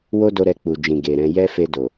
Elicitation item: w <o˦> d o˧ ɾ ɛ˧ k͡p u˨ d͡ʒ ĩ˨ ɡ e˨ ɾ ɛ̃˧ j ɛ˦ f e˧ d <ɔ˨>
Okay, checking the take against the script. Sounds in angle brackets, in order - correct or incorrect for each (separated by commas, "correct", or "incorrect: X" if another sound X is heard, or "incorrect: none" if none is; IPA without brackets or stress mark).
correct, incorrect: o˨